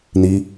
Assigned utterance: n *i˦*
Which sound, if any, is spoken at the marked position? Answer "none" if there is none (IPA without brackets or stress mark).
i˦